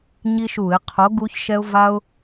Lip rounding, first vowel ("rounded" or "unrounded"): unrounded